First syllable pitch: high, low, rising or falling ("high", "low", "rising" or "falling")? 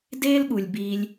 high